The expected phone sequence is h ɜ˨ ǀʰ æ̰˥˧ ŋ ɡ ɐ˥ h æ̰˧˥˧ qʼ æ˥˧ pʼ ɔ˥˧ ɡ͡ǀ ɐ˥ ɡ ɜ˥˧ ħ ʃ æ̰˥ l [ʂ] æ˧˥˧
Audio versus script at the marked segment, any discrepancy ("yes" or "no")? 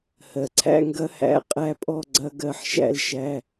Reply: yes